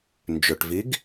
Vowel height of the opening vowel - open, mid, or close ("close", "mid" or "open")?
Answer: close